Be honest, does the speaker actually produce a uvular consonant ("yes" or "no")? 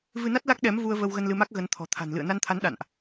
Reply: no